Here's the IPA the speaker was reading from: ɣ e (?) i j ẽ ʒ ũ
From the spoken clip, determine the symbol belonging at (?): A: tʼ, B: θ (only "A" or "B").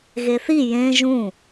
B